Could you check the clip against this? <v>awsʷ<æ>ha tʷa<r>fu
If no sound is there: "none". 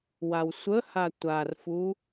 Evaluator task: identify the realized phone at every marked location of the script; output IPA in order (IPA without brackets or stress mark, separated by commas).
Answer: w, ə, r